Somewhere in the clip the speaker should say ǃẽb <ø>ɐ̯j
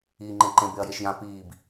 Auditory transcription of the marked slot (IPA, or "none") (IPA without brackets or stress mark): e